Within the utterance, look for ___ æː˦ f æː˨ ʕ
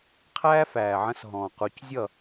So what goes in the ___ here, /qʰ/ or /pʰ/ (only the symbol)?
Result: qʰ